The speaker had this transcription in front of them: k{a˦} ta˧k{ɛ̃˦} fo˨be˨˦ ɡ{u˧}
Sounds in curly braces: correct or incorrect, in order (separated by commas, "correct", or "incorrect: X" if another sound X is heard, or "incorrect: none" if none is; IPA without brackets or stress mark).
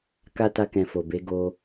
correct, incorrect: ɛ̃˨, incorrect: o˧